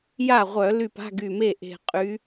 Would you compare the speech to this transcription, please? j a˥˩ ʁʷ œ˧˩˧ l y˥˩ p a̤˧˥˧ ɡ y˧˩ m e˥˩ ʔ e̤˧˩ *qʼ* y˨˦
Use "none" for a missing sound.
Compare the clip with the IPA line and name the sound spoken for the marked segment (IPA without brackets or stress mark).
qʼ